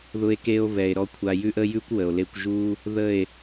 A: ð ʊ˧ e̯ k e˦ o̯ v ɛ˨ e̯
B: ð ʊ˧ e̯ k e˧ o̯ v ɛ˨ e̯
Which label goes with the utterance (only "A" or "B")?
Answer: B